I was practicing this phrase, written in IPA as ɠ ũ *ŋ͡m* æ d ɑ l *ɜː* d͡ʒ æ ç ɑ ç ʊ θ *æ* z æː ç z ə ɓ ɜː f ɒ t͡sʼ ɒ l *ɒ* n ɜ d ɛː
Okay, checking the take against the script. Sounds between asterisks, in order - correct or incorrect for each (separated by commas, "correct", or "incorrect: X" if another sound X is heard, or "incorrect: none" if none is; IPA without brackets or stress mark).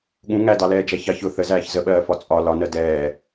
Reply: incorrect: ŋ, incorrect: ɛː, incorrect: ə, correct